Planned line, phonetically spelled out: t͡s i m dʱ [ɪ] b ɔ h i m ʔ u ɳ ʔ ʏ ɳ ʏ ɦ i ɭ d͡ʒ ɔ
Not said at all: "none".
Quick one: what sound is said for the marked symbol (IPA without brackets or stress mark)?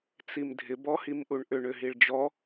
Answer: ɪ